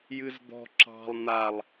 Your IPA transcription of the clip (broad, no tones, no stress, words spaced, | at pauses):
jɨzd̪ɔ̤ ǁɑ̤lˠ n̪alˠ